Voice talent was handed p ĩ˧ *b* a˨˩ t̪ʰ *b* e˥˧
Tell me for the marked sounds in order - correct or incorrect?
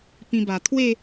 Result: correct, incorrect: w

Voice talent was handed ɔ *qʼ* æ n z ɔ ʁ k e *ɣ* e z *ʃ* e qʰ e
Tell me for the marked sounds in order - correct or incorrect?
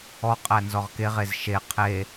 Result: correct, incorrect: ʁ, correct

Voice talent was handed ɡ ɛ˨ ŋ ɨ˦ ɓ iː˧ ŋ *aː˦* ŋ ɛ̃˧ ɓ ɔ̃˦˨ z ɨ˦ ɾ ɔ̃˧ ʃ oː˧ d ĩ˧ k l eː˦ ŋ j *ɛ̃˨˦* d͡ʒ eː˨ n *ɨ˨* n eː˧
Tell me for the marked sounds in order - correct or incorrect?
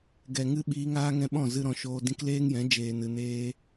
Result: correct, correct, correct

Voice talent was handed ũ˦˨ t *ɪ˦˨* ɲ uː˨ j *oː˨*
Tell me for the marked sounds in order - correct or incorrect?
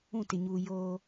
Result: incorrect: ɪ˨, incorrect: oː˦

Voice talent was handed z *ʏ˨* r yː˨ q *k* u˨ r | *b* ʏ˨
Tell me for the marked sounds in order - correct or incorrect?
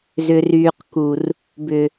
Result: correct, correct, correct

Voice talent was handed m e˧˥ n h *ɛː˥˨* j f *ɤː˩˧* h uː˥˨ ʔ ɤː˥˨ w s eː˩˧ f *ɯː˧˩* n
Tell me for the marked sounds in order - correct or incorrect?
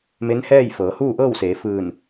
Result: correct, correct, correct

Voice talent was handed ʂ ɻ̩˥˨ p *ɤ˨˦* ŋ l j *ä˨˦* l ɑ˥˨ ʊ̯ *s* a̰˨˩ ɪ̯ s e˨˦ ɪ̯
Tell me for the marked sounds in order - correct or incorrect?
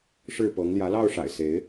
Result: correct, correct, incorrect: ʂ

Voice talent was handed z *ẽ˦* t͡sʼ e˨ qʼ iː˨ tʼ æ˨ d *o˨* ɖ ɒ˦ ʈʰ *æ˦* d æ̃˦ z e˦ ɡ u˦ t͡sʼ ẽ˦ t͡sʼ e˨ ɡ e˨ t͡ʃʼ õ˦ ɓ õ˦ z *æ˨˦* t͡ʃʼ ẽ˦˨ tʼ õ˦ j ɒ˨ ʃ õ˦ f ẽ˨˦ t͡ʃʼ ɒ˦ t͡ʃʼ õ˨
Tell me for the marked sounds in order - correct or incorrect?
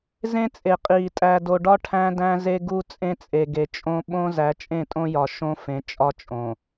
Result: correct, correct, incorrect: æ̃˦, correct

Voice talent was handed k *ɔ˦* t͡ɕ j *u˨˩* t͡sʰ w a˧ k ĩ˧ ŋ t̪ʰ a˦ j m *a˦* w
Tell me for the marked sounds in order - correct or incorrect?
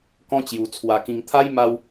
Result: incorrect: ɔ̃˦, incorrect: u˧, correct

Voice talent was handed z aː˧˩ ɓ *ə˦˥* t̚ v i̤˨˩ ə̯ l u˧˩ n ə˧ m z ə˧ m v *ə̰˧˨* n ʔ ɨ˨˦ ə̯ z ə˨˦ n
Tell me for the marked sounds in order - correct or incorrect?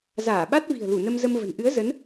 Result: incorrect: a˦˥, incorrect: ə̤˨˩

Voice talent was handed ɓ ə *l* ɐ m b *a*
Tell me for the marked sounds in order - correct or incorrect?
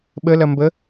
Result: correct, incorrect: ə

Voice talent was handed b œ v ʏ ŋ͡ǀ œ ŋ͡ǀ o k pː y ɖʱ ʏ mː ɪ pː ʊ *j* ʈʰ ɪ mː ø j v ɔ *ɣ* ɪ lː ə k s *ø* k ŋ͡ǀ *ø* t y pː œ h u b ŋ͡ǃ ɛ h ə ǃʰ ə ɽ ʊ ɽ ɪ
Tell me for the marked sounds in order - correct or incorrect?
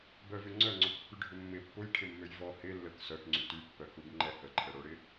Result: correct, incorrect: h, incorrect: œ, incorrect: y

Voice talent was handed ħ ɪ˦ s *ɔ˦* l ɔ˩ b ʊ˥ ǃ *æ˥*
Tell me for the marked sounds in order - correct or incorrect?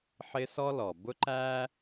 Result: correct, correct

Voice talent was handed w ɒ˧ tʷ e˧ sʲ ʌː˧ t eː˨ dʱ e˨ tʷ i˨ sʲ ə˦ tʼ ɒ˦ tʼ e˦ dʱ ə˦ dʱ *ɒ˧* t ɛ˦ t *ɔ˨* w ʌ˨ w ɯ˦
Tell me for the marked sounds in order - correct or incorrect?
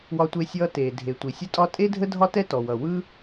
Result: incorrect: ɒ˦, correct

